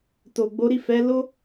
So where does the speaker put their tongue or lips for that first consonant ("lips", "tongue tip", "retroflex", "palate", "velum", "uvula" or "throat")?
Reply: tongue tip